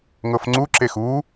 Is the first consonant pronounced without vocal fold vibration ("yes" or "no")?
no